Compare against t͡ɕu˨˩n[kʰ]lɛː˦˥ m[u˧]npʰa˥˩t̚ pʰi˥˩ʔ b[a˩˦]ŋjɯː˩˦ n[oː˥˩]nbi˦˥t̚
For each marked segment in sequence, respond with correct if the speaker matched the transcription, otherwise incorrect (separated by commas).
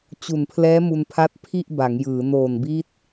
incorrect, correct, correct, incorrect